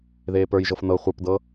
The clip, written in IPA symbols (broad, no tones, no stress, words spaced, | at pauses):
ðeːpə˞jʒɤf nɤ χʷə˞pdɤ